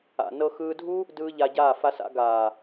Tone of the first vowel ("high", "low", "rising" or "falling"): low